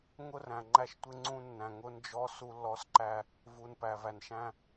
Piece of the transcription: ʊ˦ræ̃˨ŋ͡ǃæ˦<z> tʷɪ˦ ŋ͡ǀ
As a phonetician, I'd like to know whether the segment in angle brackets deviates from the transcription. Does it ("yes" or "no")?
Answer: yes